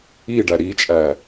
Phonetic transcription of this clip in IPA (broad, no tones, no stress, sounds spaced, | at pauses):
i ɖ æ ɾ i t͡ʃʼ æ